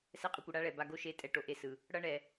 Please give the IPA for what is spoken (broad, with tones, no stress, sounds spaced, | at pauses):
s ɛ˦ qʼ ɯ˧ kʷ ɯ˨ ɽ a˦ ɭ ɛ˨ b a˧ ɡ o˦ ʃ e˧ tʼ ɛ˧ ʈ o˨ ʔ e˦ s ɯ˨ | ɽ ʌ˦ ɳ ɛ˨